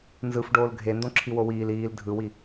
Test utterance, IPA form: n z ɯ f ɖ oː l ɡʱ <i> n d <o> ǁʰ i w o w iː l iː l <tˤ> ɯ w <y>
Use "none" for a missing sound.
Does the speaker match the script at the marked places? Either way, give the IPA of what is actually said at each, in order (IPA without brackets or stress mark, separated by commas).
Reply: e, õ, dʱ, i